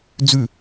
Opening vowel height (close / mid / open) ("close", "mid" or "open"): close